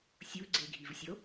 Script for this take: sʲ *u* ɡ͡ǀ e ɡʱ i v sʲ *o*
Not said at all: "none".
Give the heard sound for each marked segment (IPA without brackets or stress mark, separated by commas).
u, o